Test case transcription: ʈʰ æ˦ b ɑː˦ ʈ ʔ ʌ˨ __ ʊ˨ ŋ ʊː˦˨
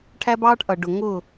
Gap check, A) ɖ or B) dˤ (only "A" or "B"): A